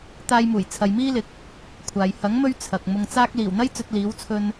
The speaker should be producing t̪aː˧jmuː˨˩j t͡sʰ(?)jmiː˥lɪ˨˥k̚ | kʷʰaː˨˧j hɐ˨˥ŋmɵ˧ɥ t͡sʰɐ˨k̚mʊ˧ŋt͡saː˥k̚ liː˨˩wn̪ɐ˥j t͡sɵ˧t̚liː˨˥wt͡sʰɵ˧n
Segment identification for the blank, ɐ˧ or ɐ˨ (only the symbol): ɐ˨